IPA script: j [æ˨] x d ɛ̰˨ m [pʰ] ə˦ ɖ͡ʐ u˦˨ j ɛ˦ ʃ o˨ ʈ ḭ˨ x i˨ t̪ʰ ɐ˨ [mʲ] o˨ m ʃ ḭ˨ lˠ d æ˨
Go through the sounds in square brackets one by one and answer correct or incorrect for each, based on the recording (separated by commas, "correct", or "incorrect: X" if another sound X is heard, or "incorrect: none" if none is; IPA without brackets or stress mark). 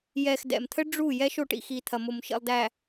incorrect: ɛ˨, incorrect: t̪ʰ, incorrect: m